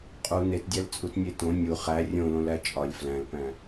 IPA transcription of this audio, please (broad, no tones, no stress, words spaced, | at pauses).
qʼu netdʲælt͡sʼut nʲetõ nʲu χæ rʲõlõlæ t͡ʃʼɒlʲ flæ̃lpæ̃